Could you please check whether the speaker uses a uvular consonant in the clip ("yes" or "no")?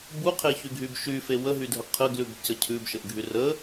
yes